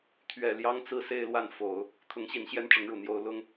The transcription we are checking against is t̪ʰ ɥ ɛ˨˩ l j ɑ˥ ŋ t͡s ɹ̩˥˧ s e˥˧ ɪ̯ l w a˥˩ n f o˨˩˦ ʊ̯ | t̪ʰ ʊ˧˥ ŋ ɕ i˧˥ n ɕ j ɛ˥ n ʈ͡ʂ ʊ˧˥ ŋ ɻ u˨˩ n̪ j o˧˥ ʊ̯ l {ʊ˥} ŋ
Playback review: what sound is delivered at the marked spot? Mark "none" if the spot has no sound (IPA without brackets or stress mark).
ʊ˥